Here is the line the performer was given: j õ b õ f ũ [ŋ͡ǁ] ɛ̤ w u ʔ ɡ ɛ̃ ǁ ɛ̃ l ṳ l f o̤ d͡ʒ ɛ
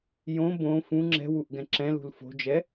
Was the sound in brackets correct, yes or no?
yes